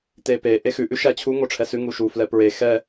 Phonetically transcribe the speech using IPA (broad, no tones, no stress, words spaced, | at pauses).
tepe ʔexʉ ʔʉʃæt͡ɕʰu ŋoʈ͡ʂʰɛsʉ ŋuʃu flɛpɹe xɛ